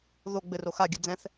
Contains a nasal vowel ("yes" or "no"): yes